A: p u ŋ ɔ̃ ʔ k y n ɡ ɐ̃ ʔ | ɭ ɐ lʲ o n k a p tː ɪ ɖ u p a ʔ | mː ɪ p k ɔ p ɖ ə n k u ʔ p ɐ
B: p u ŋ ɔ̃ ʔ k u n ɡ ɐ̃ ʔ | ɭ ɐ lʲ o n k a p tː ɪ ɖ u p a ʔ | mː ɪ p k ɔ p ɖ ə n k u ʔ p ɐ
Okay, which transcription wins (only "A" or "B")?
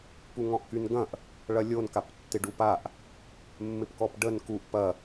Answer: A